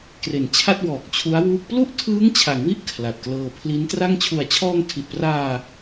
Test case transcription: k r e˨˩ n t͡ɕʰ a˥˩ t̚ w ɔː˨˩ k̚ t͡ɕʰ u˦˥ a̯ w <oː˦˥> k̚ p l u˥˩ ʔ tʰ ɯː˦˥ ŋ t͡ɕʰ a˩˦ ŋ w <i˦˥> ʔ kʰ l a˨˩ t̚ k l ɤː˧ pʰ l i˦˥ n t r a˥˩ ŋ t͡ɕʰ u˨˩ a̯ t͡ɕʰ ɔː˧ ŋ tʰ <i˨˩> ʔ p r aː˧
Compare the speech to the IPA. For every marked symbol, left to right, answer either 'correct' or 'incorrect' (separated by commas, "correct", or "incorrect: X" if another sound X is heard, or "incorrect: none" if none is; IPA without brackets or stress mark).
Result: incorrect: uː˦˥, correct, correct